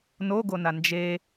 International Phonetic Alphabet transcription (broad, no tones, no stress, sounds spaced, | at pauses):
n o ɡ o n a n d͡ʒ e